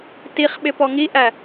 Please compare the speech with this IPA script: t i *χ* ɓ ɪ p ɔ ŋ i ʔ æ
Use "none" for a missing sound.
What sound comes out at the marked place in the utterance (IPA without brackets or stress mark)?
χ